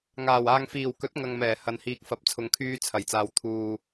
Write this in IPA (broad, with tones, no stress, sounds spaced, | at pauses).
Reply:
ŋ aː˨˩ w aː˨ ŋ f iː˨˩ w k ɵ˨˥ t̚ ŋ ɐ˨ ŋ m ɛː˨˩ h ɐ˨ n h iː˨ k̚ f ɐ˨˥ p̚ t͡sʰ ʊ˨˧ ŋ kʰ yː˧ t͡sʰ ɐ˨˩ j t͡s aː˨ w t̪ʰ uː˨